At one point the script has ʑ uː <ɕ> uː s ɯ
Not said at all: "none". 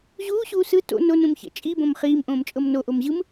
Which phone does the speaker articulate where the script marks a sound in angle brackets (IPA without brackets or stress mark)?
ɕ